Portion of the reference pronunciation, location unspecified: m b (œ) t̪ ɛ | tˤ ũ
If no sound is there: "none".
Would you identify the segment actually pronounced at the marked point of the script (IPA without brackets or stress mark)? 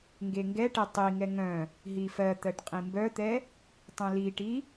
œ